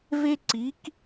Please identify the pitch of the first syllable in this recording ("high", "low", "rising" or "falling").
high